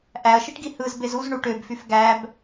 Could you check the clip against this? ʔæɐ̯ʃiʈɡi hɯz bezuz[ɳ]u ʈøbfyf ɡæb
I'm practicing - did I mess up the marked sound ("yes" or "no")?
no